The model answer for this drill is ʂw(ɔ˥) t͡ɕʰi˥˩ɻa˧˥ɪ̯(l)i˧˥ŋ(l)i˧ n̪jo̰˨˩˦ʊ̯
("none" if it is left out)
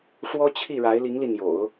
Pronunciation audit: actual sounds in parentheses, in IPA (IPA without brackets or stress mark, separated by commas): ɔ˥, l, l